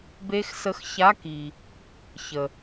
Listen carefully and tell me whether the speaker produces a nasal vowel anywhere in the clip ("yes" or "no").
no